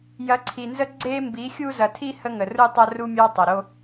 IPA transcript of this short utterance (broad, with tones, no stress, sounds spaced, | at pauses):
j ɐ˨˦ ǀʰ i˨ n z ə˦ ɡ͡ǀ e˦ m b i˨˦ xʲ u˦ z ɐ˨ tʰ i˦ h ə˦ ŋ ə˨ r u˦ tˤ ɐ˦ r u˦ mʲ ɑ˦ tˤ ɐ˨ ɾ o˦